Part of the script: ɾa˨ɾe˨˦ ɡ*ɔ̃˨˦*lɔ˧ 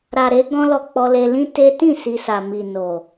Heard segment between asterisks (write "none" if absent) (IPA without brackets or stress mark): ɔ̃˦